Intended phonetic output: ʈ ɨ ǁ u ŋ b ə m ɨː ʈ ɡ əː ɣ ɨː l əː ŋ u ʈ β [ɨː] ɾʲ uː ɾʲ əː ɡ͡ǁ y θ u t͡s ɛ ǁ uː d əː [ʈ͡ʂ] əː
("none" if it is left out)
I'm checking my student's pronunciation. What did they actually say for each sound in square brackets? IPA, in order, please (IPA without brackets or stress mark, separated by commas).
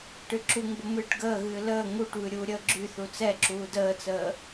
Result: ɨ, t͡s